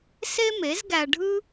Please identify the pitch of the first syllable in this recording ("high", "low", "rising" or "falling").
high